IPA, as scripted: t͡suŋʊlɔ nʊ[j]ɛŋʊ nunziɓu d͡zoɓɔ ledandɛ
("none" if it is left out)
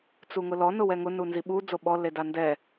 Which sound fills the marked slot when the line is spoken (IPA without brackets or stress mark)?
w